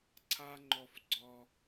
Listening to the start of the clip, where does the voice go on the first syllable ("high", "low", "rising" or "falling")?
high